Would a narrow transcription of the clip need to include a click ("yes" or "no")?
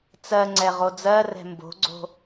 yes